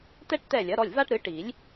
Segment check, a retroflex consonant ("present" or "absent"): present